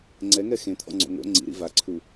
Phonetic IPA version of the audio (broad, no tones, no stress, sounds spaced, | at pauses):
ŋ͡ǀ ɛ ŋ ɛ x ẽ t̪ʰ ɔ̰ ŋ͡ǀ o̰ ŋ o̰ ŋ͡ǀ ḭ ɾ ḭ v a ǀʰ u